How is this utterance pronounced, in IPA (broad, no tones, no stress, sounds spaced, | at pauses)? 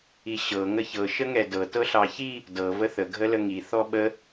i ɕ ɤ ŋ ə ç ɤ ʃ ə ŋ ɛ d ɤ t ɤ ɬ ɑ ç i | d ɤ v ə θ ə ɡʱ ə l ə ŋ i θ ɔ ɓ ə